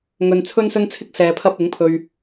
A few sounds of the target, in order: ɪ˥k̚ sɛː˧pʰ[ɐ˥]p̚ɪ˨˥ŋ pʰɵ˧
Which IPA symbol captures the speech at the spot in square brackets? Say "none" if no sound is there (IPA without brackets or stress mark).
ɐ˥